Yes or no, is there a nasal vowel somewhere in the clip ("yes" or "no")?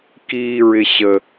no